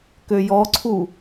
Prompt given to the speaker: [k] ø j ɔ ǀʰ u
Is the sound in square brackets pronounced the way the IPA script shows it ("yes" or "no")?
yes